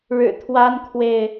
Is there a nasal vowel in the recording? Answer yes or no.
no